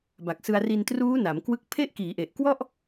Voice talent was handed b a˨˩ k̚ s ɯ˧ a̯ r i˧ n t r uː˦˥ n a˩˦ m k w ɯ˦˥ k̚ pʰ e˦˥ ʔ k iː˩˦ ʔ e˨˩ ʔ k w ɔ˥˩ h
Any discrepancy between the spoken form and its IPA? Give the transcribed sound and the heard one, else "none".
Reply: h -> ʔ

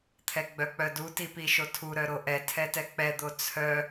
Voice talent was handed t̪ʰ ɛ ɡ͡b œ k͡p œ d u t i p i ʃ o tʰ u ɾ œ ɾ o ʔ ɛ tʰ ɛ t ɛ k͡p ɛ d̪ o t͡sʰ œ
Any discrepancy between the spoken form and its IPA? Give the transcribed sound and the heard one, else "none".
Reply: none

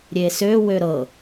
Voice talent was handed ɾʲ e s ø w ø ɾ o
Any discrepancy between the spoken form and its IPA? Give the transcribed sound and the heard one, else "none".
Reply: o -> ɤ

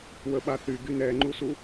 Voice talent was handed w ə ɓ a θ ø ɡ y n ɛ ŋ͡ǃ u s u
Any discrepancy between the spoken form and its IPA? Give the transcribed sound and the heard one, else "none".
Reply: ø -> y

